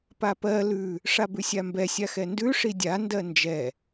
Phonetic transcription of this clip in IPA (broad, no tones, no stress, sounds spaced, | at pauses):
p a p ɜ l ʉ | ʂ a b ʉ sʲ a m b ɛ sʲ a x ɛ n d ʉ ʂ i dʲ a n d ɜ n d͡ʒ ɛ